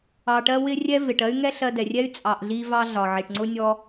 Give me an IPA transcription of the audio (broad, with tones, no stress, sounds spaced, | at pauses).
ɑ˧ ʈ ɜ˦ w ɪ˦ rʲ ɛ˦ v ɪ˨ ʈ ɜ˦ y̯ ŋ ɛ˦ ɬ ɜ˧ d ɛ˨ rʲ ɛ˦ y̯ t͡sʼ ɑ˧ ʔ ɮ i˦ v ɑ˦ ɮ ɒ˨ ʕ i˨ ʈ ŋ͡ǀ ʊ˦ nʲ ɔ˧